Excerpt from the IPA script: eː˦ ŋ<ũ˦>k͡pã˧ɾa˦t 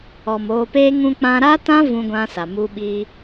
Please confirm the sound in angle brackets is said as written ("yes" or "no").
no